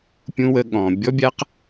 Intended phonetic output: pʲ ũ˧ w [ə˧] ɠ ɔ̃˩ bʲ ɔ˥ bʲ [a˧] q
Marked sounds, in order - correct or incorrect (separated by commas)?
correct, incorrect